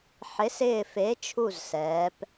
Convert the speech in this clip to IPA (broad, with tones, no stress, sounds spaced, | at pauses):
ħ ɪ˩˥ s ɪː˧˩ f e˩˥ t͡ʃʰ u˧˩ z s ɛː˩˧ p